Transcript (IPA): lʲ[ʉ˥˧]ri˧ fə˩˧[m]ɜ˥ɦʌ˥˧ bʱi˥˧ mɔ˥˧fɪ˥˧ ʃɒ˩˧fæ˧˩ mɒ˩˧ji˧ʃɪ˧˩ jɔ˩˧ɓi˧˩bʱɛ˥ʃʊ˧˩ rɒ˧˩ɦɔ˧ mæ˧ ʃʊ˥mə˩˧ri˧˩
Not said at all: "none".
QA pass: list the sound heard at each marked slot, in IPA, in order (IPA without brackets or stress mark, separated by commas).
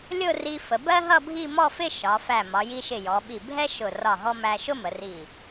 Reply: ʊ˥˧, b